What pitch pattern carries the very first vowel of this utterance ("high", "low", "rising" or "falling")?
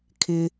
low